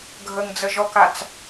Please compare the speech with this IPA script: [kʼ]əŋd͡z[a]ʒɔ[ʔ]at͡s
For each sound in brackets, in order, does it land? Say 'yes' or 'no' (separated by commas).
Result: no, no, no